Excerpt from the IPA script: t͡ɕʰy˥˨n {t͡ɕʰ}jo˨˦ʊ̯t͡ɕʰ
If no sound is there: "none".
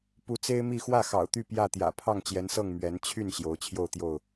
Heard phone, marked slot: ɕ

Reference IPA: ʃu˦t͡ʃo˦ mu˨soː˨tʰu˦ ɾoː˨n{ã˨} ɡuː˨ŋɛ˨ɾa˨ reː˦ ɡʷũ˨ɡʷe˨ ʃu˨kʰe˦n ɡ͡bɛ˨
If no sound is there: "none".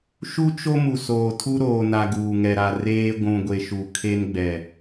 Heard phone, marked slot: a˨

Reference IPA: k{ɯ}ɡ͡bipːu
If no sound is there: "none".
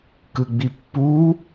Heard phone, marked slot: ɯ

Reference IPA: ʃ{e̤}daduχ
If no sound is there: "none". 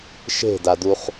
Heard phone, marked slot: e̤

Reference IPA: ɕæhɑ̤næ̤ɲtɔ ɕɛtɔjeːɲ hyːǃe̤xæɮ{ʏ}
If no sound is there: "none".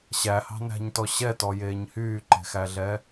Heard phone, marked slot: ɛ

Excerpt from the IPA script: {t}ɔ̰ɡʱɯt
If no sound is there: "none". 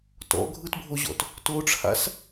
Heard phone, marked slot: t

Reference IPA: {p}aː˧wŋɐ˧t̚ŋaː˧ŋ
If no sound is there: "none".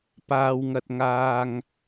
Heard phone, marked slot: p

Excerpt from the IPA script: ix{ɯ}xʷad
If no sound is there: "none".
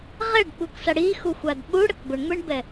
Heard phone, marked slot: u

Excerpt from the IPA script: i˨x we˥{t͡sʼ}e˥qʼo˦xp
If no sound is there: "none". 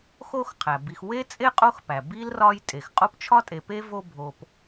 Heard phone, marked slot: t͡sʼ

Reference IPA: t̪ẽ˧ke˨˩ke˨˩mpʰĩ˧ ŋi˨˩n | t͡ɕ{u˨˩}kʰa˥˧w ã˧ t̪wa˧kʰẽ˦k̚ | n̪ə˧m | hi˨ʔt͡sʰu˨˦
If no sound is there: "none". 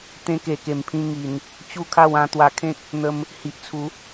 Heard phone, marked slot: u˥˧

